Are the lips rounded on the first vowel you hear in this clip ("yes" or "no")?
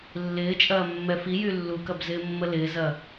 no